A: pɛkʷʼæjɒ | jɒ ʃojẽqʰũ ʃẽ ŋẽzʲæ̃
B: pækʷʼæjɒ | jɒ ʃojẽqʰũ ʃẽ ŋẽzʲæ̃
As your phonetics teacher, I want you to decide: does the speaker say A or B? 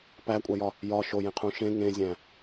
B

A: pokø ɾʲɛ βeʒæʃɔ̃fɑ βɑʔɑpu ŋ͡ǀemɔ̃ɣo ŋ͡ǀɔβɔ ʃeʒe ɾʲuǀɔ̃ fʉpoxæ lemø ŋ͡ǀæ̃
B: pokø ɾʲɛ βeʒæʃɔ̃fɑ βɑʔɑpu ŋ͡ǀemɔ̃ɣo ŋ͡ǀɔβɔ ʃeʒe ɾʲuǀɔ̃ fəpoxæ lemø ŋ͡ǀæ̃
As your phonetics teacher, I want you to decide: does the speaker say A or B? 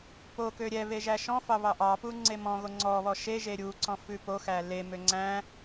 A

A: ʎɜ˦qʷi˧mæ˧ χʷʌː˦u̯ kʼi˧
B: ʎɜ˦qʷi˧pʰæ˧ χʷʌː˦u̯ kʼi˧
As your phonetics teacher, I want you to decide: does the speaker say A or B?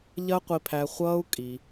B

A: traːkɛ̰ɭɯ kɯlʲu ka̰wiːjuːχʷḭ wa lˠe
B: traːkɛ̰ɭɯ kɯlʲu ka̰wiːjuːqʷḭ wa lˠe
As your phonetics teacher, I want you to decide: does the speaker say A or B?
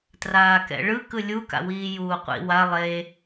B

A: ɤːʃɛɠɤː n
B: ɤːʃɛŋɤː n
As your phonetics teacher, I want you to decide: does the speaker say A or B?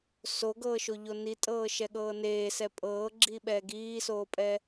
A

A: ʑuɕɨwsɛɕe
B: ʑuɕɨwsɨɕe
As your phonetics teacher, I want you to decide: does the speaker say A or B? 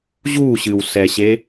A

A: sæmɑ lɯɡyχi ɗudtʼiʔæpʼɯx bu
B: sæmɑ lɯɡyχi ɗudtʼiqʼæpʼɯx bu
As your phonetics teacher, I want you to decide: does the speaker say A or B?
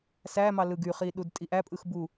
A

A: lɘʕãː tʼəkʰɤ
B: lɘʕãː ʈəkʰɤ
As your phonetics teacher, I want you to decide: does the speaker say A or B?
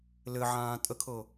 A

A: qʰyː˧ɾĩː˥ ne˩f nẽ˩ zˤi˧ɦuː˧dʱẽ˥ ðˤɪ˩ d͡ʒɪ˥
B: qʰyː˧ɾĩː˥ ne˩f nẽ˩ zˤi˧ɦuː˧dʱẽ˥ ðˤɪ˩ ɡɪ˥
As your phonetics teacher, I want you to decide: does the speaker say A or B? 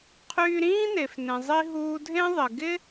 B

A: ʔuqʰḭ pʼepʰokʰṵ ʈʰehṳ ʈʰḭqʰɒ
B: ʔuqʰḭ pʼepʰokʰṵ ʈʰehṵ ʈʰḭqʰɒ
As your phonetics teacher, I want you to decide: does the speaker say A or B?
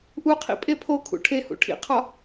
B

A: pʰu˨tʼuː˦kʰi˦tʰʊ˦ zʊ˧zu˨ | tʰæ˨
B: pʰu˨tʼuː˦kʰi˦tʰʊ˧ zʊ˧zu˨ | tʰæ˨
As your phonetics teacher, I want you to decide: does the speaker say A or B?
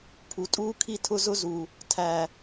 A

